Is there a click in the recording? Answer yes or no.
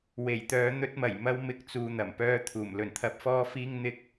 no